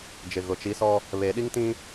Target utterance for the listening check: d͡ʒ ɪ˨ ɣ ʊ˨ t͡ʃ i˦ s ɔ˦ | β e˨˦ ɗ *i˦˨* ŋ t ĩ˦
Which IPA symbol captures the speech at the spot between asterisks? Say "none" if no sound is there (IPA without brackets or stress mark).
i˦